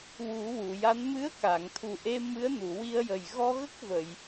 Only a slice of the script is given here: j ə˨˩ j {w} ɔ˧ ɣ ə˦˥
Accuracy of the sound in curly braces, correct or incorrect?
incorrect